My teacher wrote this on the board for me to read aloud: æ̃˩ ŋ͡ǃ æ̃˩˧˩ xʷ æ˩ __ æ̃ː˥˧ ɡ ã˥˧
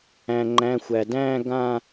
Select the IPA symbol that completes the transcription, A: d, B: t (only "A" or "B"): A